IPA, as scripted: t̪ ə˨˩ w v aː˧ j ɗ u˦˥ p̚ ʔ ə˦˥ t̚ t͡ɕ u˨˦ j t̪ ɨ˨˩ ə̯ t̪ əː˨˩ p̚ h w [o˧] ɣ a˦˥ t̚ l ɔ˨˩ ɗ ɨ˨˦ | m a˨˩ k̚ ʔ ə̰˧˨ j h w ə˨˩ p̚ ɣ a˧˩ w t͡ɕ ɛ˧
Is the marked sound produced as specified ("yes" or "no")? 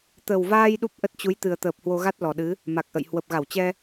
yes